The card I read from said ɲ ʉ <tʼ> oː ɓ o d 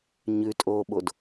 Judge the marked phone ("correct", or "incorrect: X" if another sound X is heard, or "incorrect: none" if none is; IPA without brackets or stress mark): correct